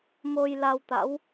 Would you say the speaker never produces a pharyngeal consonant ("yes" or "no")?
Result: yes